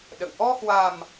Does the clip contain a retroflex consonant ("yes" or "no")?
no